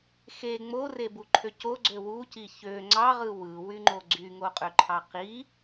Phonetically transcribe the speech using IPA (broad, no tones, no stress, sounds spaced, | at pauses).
x e ŋ͡m o r e b u ǃʰ ø c o ɡ͡ǀ ø w u c i ç ø ŋ͡ǀ ɑ ʁ ɯ w ɯ w y ŋ͡ǃ o ɡ͡ǀ y ŋ o qʼ ø ǃʰ ɑ q i